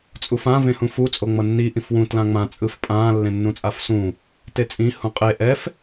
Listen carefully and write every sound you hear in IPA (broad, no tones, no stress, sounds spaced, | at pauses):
t͡sʼ u f ã v ẽ h ũ f u t͡sʼ o ŋ͡m ʌ nː i ʔ ĩ f w ũ t l ã ŋ͡m ã t͡sʼ ɯ f pʼ ãː lː ẽ nː ũ t͡sʼ a f s ũ | t e t͡sʼ ĩ h ũ qʼ e ʔ ɛ f